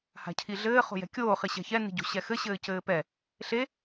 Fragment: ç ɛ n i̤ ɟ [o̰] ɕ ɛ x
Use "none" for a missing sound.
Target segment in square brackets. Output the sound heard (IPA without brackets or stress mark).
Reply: o̤